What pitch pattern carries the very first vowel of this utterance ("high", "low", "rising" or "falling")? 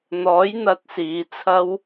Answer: rising